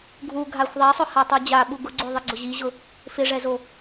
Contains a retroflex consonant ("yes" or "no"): yes